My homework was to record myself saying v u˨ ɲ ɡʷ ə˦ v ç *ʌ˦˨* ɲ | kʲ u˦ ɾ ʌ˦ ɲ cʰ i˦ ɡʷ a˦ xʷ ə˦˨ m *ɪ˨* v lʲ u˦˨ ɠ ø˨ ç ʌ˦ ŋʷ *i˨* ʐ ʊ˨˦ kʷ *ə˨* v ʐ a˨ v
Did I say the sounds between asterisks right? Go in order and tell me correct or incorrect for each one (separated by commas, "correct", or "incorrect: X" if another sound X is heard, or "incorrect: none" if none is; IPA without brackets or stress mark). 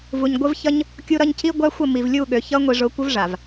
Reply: incorrect: ʌ˦, incorrect: i˨, correct, incorrect: ə˦